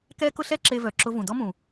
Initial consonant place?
velar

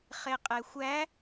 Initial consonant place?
uvular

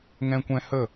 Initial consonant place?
velar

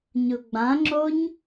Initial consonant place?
palatal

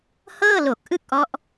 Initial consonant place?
glottal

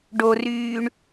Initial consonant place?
retroflex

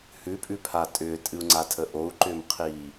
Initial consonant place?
glottal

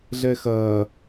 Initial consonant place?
alveolar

